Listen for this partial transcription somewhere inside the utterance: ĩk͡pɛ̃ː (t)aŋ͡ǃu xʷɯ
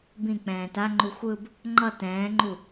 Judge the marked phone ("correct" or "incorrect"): correct